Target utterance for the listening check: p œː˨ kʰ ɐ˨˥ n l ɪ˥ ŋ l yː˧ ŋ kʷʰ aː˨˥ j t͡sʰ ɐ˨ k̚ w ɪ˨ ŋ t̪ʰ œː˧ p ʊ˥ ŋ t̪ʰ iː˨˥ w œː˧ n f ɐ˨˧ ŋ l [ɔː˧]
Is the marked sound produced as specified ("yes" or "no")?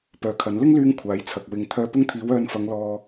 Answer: yes